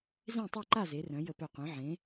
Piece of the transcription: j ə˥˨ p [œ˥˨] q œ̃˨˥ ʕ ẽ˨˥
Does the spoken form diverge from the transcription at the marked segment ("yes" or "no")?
no